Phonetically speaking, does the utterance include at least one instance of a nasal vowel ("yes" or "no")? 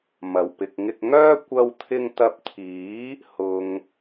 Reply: no